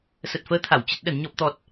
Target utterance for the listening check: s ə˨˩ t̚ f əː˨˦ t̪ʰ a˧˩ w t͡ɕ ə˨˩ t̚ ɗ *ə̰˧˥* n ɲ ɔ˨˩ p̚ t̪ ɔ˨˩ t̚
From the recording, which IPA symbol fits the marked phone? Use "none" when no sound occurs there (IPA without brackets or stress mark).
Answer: ə˧˩